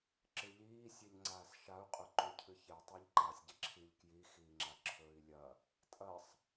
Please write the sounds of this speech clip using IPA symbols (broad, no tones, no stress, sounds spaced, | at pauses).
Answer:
ǁ ɨ ʎ iː sʲ e ʎ ŋ͡ǀ aː s ʃ a u̯ qʼ ɵ ǃ u cʰ ɨ ç e tˤ e ʎ ǃ aː sʲ ɟ e ǁʰ i ʎ k j i x iː ŋ͡ǁ a ǁʰ ɵː i̯ lʲ ɐ | tʼ ɐ sˤ